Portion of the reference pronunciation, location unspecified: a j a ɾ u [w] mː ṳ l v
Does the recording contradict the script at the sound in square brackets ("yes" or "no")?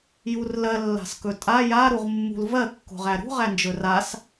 yes